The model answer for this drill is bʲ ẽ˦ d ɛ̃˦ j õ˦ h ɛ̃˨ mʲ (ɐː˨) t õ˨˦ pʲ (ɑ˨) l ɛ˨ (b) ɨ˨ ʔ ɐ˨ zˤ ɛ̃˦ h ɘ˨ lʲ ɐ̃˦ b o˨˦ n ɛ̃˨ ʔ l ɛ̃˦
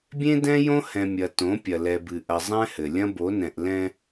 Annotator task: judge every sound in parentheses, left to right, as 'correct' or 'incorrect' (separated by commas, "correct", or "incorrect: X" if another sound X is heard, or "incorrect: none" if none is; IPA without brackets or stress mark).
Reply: incorrect: ɐ˨, incorrect: ɐ˨, correct